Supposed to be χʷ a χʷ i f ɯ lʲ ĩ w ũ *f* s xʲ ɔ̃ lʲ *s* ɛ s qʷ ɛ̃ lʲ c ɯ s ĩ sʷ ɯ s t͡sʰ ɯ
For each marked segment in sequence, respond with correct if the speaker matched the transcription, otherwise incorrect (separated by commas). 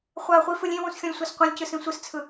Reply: incorrect, incorrect